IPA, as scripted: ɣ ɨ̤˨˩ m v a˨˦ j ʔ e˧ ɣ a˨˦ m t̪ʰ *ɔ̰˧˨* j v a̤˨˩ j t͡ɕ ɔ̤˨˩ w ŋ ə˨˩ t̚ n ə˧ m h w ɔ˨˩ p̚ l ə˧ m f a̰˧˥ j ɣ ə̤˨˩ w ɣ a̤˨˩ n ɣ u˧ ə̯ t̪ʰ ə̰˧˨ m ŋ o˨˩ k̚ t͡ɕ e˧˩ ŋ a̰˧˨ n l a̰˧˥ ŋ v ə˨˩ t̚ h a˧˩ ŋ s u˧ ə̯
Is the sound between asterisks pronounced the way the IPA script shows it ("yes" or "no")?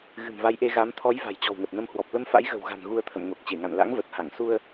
no